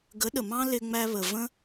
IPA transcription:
ɡə˨˦ɗə˨mɑ̃˦ lɪ˧ŋ͡mæ˧βə˨və̃˦

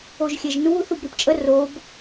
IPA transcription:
oʒxʲɛʒnuːθ ubɾipt͡ʃʼə rob

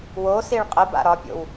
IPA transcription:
wosiɭ qʼəba̰ ɾɒpʲo̰w

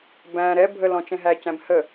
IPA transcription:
bæ̃ ɾɛ bʱəlɔ̃ t͡ʃɛ̃ɦæcæ̃b hə

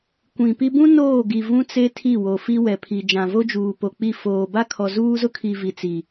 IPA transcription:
kʷĩ˨pi˦ bũ˦ noː˦˨ɡi˨ vũ˦t͡se˦ tʰi˦˨wo˨fi˦ wɛ˨pʰi˨ d͡ʒã˨vo˦d͡ʒuː˨po˨ k͡pi˦˨ foː˨ba˦kʰɔ˨ zuː˦zʊ˦kʰi˨ vi˨t͡si˨

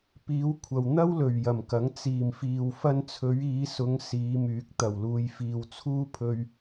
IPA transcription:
piː˨˧wkʷʰɐ˨w n̪ɐ˥wlɵ˨˩ɥ jɐ˨˩mkɐ˨˥ŋ t͡siː˨˩mfiː˨w fɐ˧nt͡sʰɵ˨˧ɥ iː˨˧sʊ˨˧ŋ siː˨˧myː˨˥k̚ t̪ɐ˨˩wluː˨j fiː˨wt͡sʰuː˥pʰɵ˧ɥ

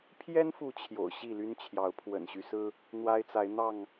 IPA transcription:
pʰjɛ˦nfu˨˦ t͡ɕʰjo̰˨˩ʊ̯ ɕi˥˨ly˦nt͡ɕʰjɑ˨˦ʊ̯ pʰwə̰˨˩nɕy˦sɹ̩˦ | n̪wa˦ɪ̯t͡sa˨˦ɪ̯n̪ɑ˥˨ŋ

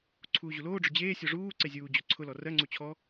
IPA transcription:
ǀʰuːʑuloːɖ͡ʐʊ d͡ʑeːsʲɔ ʐuː ǀezʲuːd͡ʑo ǀʰʊlɔ rɜŋ͡ǀu t͡ɕʰɔ

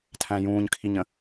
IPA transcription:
tʰæ̃jũːɲkʰiɲə̃

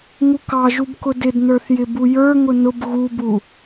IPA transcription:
ŋukɑʒub kʊdɪdnə˞θjɪ bujə˞ŋʊ nʊb ɣubu

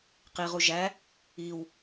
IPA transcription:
qiʁu ʒæ | iw

